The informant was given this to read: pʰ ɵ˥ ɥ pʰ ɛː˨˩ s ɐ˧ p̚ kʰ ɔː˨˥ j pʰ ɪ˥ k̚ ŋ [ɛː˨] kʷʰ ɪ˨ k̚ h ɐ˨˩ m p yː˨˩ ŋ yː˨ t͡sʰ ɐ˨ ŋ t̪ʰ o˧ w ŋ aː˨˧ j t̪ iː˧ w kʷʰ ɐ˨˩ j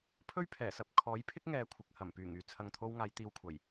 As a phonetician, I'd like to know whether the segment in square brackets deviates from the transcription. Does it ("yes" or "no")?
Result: no